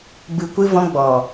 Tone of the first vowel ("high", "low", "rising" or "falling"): low